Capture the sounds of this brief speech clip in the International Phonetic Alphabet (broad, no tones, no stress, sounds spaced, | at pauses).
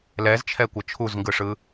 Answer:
l ɛ z t͡ʃʰ ɛ kʷ ʌ t͡ʃʰ u z ŋ ɡ ɯ ʂ ɯ